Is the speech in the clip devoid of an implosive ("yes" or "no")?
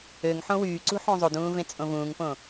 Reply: yes